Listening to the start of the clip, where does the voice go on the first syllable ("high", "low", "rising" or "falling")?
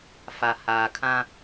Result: low